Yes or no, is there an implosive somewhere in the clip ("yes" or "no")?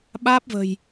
yes